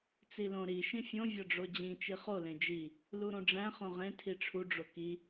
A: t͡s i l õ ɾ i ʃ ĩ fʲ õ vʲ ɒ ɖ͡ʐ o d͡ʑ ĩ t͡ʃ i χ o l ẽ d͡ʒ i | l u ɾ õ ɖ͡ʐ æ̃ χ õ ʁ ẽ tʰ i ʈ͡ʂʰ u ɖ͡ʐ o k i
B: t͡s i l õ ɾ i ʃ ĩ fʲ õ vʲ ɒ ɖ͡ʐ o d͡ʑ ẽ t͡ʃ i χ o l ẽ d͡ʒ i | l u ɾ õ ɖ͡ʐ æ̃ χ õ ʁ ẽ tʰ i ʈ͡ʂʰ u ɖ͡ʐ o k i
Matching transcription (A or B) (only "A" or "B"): A